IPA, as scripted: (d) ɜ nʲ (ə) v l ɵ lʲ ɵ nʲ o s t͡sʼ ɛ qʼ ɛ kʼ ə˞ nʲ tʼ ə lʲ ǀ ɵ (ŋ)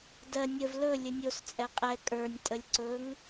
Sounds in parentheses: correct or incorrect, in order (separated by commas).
correct, correct, correct